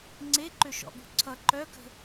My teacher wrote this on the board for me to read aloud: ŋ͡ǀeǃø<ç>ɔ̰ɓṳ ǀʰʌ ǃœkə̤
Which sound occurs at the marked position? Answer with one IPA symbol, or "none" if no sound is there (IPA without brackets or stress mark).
ʃ